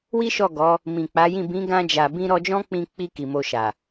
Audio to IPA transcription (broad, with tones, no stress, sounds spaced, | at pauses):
w i˦ ʃ ɔ˦˨ ɡ ɔ˨˦ | m ĩ˨ k͡p a˨˦ j ĩ˦˨ b ĩ˨˦ ɡ ã˧ d͡ʒ a˨ b ĩ˧ ɾ ɔ˧ d͡ʒ ɔ̃˦ k͡p ĩ˧ k͡p i˧ k i˨ m o˧ ʃ a˨